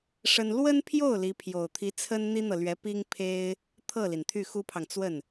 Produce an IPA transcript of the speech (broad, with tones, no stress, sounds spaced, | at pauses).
ʂ ə˥ n l w ə˥ n pʰ j o˥˩ ʊ̯ l i˧˥ pʰ j o˨˩ ʊ̯ t̪ʰ i˧˥ t͡sʰ ə˥ n n̪ i˥ n̪ ɤ˨ l ɥ ɛ˧˥ p i˥ ŋ pʰ e˥ ɪ̯ | t̪ʰ ɤ˥˩ l i˩ n t̪ʰ y˥˩ x u˥ pʰ ɑ˨ ŋ t͡s w ə˥˩ n